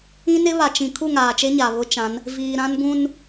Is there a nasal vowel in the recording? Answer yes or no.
yes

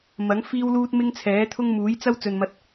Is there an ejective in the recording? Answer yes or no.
no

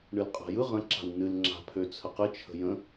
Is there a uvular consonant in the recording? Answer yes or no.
yes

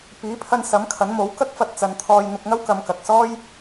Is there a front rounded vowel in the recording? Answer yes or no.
no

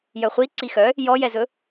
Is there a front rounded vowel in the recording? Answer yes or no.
yes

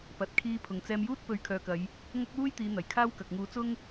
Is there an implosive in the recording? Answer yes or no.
no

